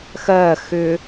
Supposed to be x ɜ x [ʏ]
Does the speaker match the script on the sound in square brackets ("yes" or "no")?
yes